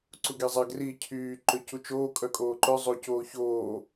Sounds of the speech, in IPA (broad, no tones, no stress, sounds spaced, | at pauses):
ǀ u ɡ e zˤ a ɡ r i cʰ yː ǃ ø c u t͡ʃ oː kʼ œ kʼ oː ǃ œ zˤ o c oː ç oː